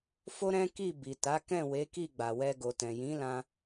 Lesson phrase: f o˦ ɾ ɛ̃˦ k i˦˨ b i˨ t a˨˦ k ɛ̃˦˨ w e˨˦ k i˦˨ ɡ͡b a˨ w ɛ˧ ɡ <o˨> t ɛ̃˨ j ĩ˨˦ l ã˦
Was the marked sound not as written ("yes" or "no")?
no